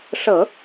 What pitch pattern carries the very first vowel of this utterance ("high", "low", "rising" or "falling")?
low